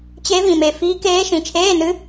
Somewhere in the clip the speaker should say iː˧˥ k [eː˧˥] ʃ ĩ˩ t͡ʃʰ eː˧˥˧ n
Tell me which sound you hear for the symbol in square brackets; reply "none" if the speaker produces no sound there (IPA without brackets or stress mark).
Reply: eː˧˥